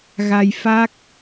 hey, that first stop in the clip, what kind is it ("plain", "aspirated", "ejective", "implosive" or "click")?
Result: plain